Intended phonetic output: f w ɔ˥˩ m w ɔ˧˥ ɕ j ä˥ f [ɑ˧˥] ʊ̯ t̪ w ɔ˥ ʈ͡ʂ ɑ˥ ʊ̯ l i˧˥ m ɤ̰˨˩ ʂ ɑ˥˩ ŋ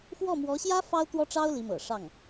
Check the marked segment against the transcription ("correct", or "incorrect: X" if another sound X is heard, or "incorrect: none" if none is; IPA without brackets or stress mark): incorrect: ɑ˥